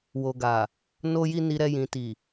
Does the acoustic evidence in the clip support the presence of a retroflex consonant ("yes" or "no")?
no